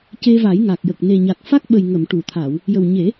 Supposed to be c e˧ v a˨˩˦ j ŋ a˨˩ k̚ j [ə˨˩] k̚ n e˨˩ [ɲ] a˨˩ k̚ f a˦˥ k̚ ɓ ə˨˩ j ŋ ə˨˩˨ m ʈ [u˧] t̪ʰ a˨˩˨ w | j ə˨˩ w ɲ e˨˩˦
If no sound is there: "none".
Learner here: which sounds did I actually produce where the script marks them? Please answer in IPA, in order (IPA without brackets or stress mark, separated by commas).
ə˨˩, ɲ, u˨˩˨